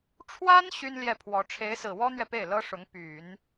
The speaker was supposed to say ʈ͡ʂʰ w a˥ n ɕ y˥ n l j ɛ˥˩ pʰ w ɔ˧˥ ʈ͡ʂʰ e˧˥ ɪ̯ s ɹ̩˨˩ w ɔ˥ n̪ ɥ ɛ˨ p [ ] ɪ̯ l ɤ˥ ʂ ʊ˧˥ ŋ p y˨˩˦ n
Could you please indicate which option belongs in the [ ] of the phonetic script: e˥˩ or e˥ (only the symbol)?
e˥˩